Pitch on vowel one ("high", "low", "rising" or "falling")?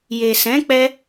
low